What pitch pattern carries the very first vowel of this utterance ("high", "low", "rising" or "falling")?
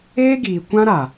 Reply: high